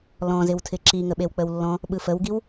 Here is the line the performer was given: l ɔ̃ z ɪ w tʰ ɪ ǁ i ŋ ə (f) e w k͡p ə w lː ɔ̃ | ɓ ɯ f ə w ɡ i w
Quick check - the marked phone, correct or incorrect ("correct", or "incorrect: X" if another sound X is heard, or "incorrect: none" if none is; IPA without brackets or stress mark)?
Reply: incorrect: ɓ